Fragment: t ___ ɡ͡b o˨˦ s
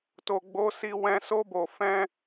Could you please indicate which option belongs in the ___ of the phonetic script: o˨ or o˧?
o˨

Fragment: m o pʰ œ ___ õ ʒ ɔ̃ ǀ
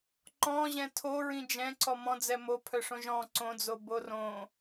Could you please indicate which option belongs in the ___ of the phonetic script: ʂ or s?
ʂ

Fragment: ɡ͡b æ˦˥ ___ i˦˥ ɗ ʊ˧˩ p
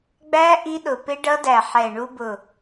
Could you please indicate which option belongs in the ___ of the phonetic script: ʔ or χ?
ʔ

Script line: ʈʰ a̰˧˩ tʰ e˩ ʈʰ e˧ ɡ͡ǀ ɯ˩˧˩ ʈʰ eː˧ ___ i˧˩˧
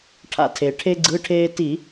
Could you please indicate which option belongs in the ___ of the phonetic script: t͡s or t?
t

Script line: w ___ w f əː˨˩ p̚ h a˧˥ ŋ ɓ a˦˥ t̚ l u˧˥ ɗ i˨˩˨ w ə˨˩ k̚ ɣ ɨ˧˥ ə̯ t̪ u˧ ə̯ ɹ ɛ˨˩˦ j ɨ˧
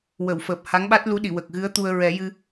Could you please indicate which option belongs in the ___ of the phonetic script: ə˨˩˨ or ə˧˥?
ə˨˩˨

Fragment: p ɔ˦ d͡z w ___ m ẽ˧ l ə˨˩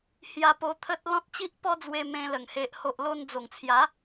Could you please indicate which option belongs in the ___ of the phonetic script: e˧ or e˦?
e˧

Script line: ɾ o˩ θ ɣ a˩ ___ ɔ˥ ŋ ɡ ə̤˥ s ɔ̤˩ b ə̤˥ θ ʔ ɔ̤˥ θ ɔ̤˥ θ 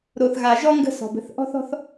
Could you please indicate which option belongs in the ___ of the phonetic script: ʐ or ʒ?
ʒ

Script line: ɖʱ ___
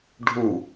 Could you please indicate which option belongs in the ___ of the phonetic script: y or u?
u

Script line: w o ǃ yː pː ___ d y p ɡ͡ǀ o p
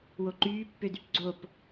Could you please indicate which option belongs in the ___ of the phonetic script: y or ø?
ø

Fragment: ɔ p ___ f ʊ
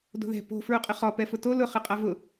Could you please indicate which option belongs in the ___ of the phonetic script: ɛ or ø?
ɛ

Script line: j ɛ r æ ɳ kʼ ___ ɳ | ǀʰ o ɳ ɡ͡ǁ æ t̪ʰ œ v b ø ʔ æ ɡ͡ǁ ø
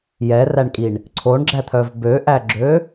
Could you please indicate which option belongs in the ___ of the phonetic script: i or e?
i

